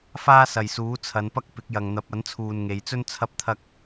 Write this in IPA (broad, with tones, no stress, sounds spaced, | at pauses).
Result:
f aː˥ s ɐ˨ j s uː˨˥ t͡sʰ ɐ˨˧ n p ɐ˥ k̚ p ɪ˨˥ k̚ j ɐ˨ ŋ n̪ ɐ˨˥ p̚ ɐ˨˥ n t͡sʰ uː˨ n ŋ e˨˧ j t͡s ɵ˥ n t͡sʰ ɐ˥ p̚ t̪ʰ ɐ˥ k̚